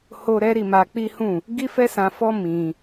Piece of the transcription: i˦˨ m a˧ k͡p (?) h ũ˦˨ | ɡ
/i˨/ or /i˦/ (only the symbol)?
i˦